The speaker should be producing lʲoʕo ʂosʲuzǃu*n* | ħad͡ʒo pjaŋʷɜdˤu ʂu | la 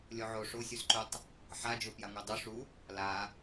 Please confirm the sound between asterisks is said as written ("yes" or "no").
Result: no